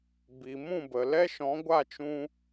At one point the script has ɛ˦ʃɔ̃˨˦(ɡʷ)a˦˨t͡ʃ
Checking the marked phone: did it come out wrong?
no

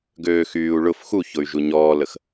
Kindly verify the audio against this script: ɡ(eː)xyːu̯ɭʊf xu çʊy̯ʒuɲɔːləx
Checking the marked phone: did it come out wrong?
yes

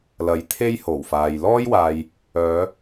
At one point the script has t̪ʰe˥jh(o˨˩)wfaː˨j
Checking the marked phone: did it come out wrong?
no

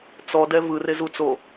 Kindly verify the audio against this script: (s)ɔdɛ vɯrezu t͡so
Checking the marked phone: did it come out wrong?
yes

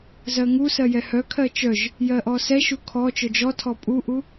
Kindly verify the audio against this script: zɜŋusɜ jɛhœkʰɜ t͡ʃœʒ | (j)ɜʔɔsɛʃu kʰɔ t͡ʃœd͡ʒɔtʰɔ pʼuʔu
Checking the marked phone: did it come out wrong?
no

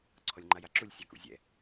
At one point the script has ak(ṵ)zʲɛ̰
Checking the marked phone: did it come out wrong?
no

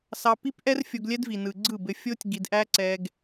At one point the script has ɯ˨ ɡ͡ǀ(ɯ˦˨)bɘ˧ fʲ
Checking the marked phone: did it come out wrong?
no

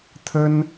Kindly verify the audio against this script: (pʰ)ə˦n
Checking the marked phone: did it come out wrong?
yes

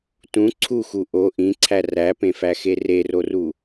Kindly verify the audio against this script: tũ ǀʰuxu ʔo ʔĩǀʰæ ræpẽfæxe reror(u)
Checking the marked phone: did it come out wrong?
no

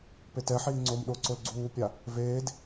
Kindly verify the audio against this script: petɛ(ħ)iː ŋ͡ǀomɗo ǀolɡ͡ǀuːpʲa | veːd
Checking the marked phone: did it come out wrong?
no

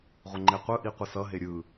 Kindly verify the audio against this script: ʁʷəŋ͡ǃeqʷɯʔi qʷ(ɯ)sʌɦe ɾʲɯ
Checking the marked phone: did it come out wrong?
no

